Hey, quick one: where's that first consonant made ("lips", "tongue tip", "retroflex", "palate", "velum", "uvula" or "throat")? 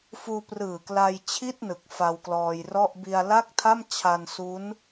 lips